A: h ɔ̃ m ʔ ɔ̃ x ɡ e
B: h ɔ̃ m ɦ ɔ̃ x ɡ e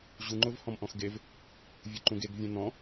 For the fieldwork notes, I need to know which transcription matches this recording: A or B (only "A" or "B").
A